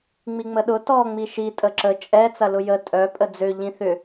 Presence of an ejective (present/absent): present